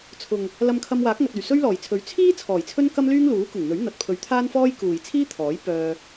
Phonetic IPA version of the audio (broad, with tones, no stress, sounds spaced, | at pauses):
t͡sʰ ʊ˨ ŋ | l ɐ˧ m kʰ ɐ˧ m w aː˨˥ k̚ ŋ ɐ˨ t̚ ɵ˨˩ ɥ s ɵ˥ ɥ l ɔː˨˩ j t͡sʰ ɵ˨˥ ɥ t͡sʰ iː˥ t͡sʰ ɔː˨˩ j t͡sʰ ɵ˥ n k ɐ˥ m l yː˥ ŋ l uː˨˥ k ʊ˨˩ ŋ n̪ ɵ˨˥ ɥ n̪ ɐ˨ t̚ pʰ ɵ˨˥ ɥ t̪ʰ aː˥ n f ɔː˥ j k uː˨ j t͡sʰ iː˥ t̪ʰ ɔː˨˥ j p œː˧